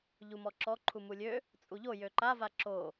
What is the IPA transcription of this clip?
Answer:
ʎ u m ɔ ǁ ɔ ǃʰ u m u lʲ ø | t͡sʼ u ʎ o j ø ǃ a v a ǁ o

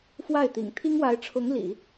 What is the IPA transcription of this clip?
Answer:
f w a˥˩ ɪ̯ t̪ ḭ˨˩ ŋ t̪ʰ i˥ ŋ w a˧˥ ɪ̯ ʈ͡ʂʰ ʊ˧˥ ŋ l ḭ˨˩˦

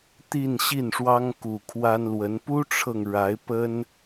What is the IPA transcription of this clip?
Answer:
t̪ i˥˧ n ɕ i˥˩ n ʂ w ɑ˥ ŋ k u˨˩ kʰ w a˥ n l w ə˧˥ n p u˥ ʈ͡ʂʰ ɤ˨ ŋ ɻ a˧˥ ɪ̯ p ə˥ n

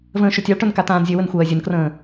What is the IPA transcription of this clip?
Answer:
v ə̃ː ʃ ɵ tʲ a ɭ ʈ ɵ n k a t̪ ãː n zʲ ɵ w ə n xʷ ɜː zʲ ə n k r ə̃ː

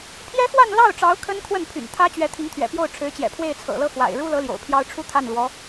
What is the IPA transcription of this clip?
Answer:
pʰ j ɛ˥ x w a˥˧ n l ɑ˥˩ ʊ̯ ʈ͡ʂ ɑ˧˥ ʊ̯ kʰ ə˥ n kʰ w ə˥˩ n pʰ y̰˨˩ n t̪ʰ ä˥ t͡ɕ ɥ ɛ˧˥ t̪ʰ i˧˥ ŋ t̪ʰ ɥ ɛ̰˨˩ p j o˥˩ ʊ̯ ʈ͡ʂʰ ɻ̩˧˥ t͡ɕ j ɛ̰˨˩ pʰ w e˥˩ ɪ̯ t͡sʰ ɤ̰˨˩ l ɤ˥˩ x w a̰˨˩ ɪ̯ ɻ u˥ l ɤ˧˥ l j o̰˨˩ ʊ̯ pʰ j ɑ˥ ʊ̯ ʈ͡ʂʰ u˥ t̪ʰ a˥˩ n l w ɔ˧˥

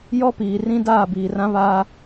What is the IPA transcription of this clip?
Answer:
j ɔ˦ p iː˨ r ĩ˦ d aː˦˨ b iː˨ r ã˦ β aː˦

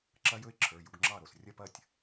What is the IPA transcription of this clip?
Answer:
ǁ ɐ˦˥ j ɵ˦˥ ɪ̯ ǁʰ ə˞˩˧˩ j u˧ ɡ ŋ͡ǁ ɑ˥˩ ɾ o˩ s rʲ ɐ˥˧ p ɐ˥˩ tʲ

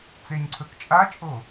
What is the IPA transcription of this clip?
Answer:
t͡s e ɲ ǀʰ ɵ k t͡ʃʼ a t͡ʃʼ o

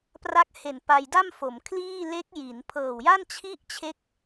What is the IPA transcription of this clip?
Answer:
p r a˦˥ k̚ h e˨˩ n p a˧ j d a˥˩ m f o˩˦ m kʰ l iː˥˩ l e˦˥ k̚ j i˩˦ n pʰ ɤː˨˩ w j a˥˩ n t͡ɕʰ i˥˩ ʔ t͡ɕʰ e˦˥ k̚

